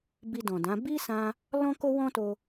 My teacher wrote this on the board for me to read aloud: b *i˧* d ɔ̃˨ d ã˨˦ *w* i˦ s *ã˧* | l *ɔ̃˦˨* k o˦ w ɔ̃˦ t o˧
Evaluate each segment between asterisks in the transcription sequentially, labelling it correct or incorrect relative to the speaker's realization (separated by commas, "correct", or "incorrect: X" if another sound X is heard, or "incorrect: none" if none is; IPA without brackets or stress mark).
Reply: correct, incorrect: b, correct, incorrect: ɔ̃˦